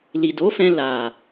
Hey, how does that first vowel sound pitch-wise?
low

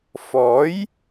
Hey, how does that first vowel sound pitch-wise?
rising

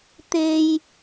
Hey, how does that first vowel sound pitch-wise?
high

